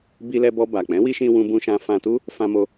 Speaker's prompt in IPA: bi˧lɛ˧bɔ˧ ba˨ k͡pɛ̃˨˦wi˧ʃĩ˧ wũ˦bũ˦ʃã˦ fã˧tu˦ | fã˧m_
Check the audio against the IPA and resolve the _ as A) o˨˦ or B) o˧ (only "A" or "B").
B